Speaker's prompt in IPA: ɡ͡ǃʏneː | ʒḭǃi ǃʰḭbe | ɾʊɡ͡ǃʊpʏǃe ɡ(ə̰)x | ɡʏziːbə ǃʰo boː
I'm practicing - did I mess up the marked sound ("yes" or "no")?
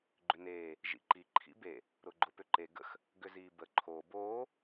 no